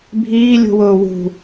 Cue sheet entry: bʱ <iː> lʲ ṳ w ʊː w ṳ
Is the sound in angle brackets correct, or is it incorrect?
correct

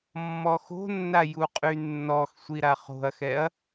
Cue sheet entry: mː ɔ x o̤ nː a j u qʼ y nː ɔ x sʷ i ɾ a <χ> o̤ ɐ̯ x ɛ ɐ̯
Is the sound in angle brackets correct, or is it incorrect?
correct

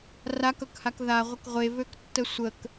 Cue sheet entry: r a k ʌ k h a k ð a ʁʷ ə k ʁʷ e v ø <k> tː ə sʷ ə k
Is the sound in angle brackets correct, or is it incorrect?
correct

